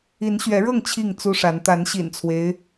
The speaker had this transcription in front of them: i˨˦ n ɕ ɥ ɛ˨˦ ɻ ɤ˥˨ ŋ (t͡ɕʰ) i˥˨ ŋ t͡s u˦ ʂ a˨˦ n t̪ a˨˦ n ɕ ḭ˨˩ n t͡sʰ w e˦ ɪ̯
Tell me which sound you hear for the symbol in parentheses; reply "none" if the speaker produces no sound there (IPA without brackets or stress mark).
t͡ɕʰ